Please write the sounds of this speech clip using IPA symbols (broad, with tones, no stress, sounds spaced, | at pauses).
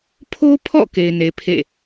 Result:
pʰ o˦ pʰ ɔ̰˦˨ k e˨ ɪ̯ n e˨ pʰ ḛ˦˨